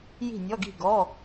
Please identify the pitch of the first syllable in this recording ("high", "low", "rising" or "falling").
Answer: falling